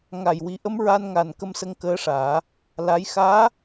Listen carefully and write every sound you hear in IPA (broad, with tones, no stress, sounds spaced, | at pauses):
ŋ a˨˩ j w i˨˩˦ ʔ ə˧˥ m ɹ a˧ n ŋ a˨˩ n k ə˧ m s ə˧ ŋ k əː˧˥ ʂ aː˨˩˦ | l a˧˥ j x aː˧˥